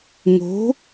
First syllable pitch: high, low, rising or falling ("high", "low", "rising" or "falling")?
rising